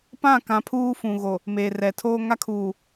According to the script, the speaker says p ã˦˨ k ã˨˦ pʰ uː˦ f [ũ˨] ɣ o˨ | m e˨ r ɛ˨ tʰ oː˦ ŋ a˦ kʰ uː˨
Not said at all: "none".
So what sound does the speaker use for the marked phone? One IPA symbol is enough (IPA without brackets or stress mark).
ũ˨